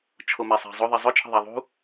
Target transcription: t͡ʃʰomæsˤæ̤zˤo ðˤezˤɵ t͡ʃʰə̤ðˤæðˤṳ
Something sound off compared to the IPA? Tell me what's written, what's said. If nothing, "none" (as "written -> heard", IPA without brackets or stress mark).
none